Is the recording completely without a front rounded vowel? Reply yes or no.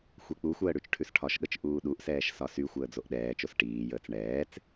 no